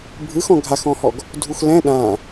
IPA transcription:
bʱɯxɔ̃ ɡʱaxɔ̃hɔɡ | dʱuxlɛ̃ ɗã

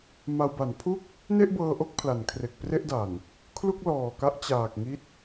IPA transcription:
ma˧wba˩˦n pʰu˥˩k̚ | ne˥˩ʔbɤː˧ʔo˦˥k̚ pʰla˩˦nkʰre˨˩k̚ pre˥˩ʔda˨˩n | kʰlu˥˩k̚lɔː˨˩ka˦˥ʔ t͡ɕaː˨˩k̚ ŋi˦˥t̚

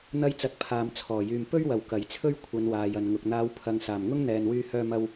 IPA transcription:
n̪ɐ˧jt͡sɐ˨˥t̚ pʰaː˨mt͡sʰɔː˨˩ jyː˨m pɵ˥ɥwɐ˨˩w kɐ˨˩jt͡sʰɵ˥ɥ kʷʰɐ˨˧nwaː˨jɐ˨nŋʊ˨k̚ n̪aː˨˧wpʰɐ˨ŋ saː˨˩mŋʊ˥ŋn̪ɛː˨nwyː˧ hœː˧mɐ˧w

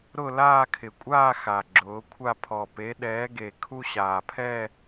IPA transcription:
ɾʊ˥˧laː˥˧kʰɪ˨˩kʷʼaː˥˧ xa˨˩ ɡ͡ǁʊː˨˦kʷʰa˥˧ pʰɔ˨˩ pe˨˦ ɗɛː˨˦ɡe˨˩ kʰu˥˧ɕaː˨˩pʰɛ˥˧

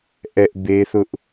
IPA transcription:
ʔɛ˦ʔ be˦θʊ˦ʔ

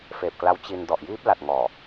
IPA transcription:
feː˨˩p̚kla˦˥w t͡ɕi˧n dɔ˨˩ʔjiː˦˥p̚la˨˩t̚ ŋɔː˨˩

